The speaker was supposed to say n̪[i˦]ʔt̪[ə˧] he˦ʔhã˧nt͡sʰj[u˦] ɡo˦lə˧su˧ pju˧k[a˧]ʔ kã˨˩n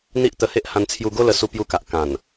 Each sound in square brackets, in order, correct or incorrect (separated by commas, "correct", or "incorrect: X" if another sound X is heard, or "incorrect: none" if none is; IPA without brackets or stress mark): correct, correct, incorrect: u˧, incorrect: a˨